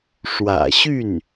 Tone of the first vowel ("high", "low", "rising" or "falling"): low